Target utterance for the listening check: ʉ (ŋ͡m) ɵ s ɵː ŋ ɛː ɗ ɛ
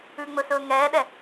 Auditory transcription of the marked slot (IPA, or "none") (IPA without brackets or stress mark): ŋ͡m